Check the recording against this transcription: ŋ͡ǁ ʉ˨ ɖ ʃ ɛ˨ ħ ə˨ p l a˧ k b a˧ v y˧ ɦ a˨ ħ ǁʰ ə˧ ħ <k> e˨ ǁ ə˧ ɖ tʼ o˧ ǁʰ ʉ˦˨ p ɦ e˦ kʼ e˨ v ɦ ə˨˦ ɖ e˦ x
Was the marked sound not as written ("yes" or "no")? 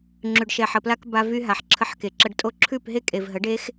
no